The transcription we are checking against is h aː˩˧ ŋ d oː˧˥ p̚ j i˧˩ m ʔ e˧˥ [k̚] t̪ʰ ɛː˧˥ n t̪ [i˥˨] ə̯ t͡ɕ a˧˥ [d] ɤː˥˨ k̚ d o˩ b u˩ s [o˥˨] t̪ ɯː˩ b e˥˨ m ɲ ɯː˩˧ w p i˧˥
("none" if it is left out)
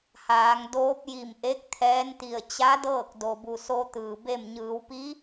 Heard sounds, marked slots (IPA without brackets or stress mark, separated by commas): k̚, i˧˩, d, o˧